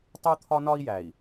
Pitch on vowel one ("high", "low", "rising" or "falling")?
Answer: high